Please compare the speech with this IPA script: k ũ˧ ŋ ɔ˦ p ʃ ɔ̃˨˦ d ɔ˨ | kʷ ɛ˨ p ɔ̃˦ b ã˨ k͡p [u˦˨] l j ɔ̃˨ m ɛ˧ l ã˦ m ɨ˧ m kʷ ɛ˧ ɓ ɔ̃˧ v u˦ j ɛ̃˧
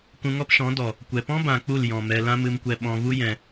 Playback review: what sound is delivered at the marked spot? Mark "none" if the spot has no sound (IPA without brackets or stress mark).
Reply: u˦˨